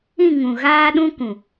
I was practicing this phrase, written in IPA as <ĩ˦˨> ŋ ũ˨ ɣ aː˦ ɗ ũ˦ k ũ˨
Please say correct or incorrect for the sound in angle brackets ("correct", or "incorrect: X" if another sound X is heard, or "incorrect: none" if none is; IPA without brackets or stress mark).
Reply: correct